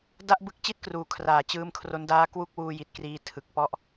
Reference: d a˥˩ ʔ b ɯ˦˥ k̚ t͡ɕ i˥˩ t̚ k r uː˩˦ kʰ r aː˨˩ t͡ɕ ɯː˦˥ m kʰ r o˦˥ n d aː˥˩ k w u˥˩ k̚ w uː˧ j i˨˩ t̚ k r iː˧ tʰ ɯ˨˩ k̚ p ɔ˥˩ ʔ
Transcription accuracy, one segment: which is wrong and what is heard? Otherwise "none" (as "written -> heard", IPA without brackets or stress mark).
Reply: none